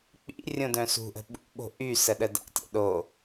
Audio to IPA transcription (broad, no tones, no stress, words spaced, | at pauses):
k͡pḭ rʲõdœ̃sṳʔə̤ ɓṵɓo̤ ʔy səɗəda̰tʲa̰ ɗo